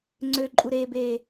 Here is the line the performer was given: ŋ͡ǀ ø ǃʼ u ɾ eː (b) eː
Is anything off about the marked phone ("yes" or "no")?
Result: no